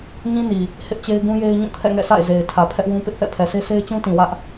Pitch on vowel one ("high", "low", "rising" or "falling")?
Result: high